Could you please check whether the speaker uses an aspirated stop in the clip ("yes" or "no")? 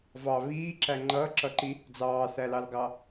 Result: no